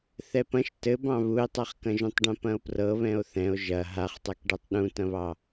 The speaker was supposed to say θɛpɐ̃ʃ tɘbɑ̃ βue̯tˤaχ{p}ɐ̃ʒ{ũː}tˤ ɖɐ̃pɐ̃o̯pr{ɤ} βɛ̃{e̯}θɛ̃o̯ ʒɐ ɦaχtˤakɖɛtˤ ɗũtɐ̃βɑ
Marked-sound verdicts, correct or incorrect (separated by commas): incorrect, incorrect, correct, incorrect